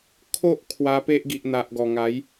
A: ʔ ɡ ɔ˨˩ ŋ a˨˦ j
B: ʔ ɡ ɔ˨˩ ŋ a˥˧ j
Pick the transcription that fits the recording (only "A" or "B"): A